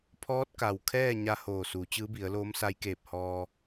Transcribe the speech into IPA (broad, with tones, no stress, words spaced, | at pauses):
pʰɔː˧˥t̚ka˩wkʰɛː˥˨ ɲa˧ hoː˧˩suː˩˧ t͡ɕɯː˧˥bi˩˧ə̯loː˧˥msa˧˥j keː˧˩p̚hɔː˧